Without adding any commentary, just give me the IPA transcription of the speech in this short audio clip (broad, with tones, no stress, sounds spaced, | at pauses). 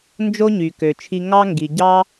n d͡ʒ o˥ ɲ y˩ k ø˩ t͡ʃʰ i˧ ŋ ɑ˥ ŋ ɡ i˩ ɟ ɑ˥